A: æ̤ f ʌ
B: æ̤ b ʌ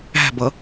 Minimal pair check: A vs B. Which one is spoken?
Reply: B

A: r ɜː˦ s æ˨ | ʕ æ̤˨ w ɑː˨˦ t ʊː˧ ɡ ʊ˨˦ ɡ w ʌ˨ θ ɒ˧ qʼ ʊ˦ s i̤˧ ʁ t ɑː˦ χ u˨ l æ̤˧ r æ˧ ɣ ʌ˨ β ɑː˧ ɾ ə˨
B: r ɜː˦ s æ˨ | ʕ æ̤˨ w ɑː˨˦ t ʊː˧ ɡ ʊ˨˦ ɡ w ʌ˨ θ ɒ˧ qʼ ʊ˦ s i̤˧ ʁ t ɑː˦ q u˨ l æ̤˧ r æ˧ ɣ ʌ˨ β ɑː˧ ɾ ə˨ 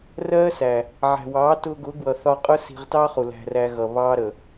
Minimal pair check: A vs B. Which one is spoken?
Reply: A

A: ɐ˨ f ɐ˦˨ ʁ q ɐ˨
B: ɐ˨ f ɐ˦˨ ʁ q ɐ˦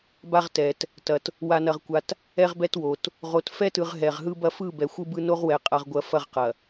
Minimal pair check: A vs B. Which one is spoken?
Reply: A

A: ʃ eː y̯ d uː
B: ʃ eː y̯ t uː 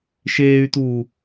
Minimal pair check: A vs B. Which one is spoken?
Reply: B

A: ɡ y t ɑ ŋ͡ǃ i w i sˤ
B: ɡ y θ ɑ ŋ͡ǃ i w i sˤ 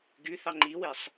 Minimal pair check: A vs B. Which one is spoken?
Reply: B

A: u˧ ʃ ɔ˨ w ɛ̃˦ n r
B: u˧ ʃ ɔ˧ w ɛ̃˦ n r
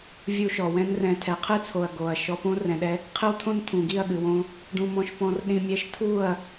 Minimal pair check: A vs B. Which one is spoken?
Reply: A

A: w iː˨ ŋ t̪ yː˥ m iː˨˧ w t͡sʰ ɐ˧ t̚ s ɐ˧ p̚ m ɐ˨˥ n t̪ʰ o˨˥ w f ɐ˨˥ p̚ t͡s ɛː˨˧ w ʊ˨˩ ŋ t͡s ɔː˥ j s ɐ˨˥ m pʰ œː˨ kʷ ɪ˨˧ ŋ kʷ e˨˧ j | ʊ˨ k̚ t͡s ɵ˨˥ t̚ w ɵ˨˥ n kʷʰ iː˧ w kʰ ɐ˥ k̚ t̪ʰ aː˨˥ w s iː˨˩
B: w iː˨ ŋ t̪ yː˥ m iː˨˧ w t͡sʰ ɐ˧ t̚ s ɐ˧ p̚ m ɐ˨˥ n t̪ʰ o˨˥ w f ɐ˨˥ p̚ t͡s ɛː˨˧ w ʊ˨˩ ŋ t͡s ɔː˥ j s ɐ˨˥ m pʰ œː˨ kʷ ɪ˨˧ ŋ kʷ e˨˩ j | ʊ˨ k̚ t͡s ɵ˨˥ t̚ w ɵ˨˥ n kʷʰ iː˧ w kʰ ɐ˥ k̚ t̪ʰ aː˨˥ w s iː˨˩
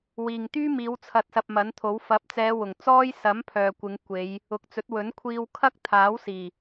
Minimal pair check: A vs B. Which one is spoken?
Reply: A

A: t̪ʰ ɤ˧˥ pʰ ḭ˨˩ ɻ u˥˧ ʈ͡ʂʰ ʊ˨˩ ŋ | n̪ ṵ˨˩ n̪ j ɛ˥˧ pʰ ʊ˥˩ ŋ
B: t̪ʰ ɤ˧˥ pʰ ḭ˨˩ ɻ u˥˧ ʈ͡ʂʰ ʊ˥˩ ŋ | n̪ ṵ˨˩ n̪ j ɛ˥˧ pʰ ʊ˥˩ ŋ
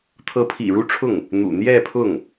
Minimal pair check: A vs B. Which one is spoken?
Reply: B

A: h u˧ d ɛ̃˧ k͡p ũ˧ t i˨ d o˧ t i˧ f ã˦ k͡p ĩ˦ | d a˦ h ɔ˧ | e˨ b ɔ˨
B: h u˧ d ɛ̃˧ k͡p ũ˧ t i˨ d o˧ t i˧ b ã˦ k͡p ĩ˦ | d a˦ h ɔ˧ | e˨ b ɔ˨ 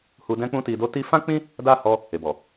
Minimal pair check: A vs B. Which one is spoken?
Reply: A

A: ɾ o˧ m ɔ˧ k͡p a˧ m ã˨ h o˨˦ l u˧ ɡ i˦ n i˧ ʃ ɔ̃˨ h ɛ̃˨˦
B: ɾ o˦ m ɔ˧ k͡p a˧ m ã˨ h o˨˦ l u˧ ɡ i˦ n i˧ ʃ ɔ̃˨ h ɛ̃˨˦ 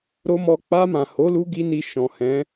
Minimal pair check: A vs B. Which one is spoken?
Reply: B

